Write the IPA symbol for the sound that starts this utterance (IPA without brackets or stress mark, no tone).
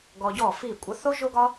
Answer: ɡ